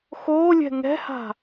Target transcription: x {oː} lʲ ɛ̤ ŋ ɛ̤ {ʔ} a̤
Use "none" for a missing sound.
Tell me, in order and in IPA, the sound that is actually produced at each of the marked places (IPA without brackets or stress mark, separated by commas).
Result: oː, h